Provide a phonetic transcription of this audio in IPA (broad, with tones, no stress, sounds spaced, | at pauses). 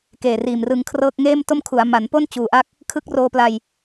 k eː˨˩ r iː˨˩ m r ɯ˧ ŋ kʰ r ɤː˥˩ k̚ ŋ eː˥˩ m t o˥˩ m kʰ u˩˦ a̯ m a˩˦ n p o˥˩ n t͡ɕ uː˩˦ ʔ a˦˥ k̚ | kʰ ɯ˦˥ k̚ r oː˧ p l a˧ j